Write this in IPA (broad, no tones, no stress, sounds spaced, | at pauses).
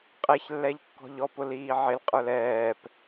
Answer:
qʼ ɛ ç lː ɛ ʎ kː ɔ̤ ʎ ɔ p ʊ l iː ʕ ɪ l qʼ ə˞ l ɛː p